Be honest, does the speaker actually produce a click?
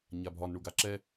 yes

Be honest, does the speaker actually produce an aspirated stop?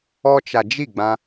no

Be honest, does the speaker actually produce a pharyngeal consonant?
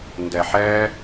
yes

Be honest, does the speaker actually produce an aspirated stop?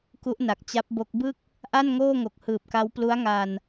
no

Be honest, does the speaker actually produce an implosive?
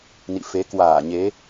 no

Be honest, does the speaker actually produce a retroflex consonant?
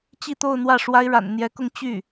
yes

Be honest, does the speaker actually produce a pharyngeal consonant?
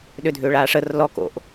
no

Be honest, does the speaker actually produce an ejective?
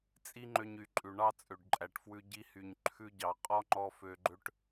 yes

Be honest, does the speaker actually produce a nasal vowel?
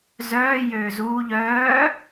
no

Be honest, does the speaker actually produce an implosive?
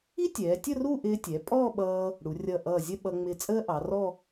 yes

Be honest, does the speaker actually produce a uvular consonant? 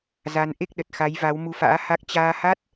no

